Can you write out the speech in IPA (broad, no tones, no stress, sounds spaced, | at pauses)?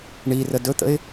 ɳ i r ə d ɵ t̪ ə̰ ɪ̯